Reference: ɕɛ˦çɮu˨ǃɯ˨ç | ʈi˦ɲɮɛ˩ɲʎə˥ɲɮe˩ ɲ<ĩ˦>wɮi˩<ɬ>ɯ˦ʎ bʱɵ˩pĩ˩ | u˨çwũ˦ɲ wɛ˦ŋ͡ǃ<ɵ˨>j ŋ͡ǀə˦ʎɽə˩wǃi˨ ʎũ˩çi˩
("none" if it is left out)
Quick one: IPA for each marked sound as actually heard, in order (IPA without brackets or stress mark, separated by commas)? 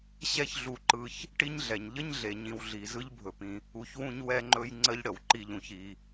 ĩ˨, z, ɵ˦